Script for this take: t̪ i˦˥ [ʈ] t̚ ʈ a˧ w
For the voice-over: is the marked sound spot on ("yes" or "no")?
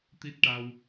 no